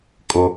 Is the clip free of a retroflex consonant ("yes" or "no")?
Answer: yes